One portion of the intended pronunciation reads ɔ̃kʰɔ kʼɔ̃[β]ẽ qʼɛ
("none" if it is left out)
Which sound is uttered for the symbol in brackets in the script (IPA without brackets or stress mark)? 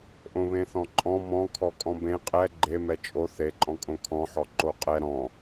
b